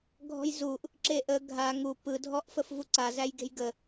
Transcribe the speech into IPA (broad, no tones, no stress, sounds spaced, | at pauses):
ɡʱ ɔ̤ j z u ʔ | ǁ e ʔ ə ɡʱ a ŋ u p ɯ dʱ ɔ ʔ f ə f v u ǀ a z æ j ɡ e̤ j ɡ ə